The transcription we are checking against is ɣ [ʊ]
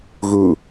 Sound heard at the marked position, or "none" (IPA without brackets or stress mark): u